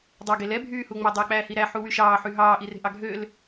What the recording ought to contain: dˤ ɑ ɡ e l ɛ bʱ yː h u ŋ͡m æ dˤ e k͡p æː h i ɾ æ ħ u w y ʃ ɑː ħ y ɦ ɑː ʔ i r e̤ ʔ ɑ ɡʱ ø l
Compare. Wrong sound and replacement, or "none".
none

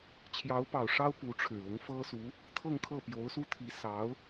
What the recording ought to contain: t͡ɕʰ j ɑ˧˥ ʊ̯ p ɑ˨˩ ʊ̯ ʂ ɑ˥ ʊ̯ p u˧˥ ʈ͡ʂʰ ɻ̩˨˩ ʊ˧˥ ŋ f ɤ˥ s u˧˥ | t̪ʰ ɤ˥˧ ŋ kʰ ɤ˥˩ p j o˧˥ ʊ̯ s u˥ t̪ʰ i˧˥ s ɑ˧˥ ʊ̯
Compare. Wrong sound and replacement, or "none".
none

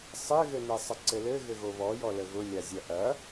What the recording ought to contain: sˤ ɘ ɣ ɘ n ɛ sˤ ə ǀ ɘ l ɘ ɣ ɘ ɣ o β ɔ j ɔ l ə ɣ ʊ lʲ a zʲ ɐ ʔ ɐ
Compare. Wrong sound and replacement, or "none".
none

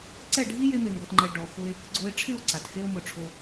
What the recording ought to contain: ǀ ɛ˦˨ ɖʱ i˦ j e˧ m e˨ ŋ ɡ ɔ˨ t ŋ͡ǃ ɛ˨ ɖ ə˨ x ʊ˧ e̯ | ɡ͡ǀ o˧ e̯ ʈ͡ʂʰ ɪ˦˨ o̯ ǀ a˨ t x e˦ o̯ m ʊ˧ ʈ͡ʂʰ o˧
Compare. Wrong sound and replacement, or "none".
ə˨ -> ɔ˨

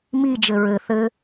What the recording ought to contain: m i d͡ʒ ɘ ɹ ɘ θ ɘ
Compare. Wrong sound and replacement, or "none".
none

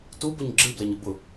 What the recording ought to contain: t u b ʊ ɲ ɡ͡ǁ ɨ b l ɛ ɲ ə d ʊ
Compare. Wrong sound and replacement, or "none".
d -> b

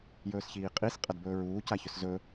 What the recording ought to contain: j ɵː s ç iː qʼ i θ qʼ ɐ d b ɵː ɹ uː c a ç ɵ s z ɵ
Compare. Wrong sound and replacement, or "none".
θ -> s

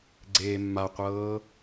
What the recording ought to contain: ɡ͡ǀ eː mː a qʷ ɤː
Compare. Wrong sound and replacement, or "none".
none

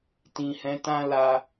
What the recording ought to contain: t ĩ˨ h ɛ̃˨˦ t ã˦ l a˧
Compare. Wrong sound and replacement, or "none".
none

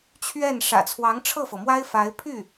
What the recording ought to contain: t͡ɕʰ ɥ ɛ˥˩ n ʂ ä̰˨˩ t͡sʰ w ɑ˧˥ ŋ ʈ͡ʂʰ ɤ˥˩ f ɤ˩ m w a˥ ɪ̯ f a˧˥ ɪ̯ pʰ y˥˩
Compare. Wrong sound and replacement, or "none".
none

